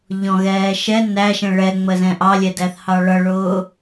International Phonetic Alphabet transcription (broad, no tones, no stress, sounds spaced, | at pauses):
ʎ ɔ̃ ɣ ɛː ʃ ɛ n æ ʃ ɛ̃ ɭ ɛ ŋ͡m ə z ɛ̃ ʔ ɑ lʲ ɛ d æ θ h ɑ ɭ ʌ ɭ ʊː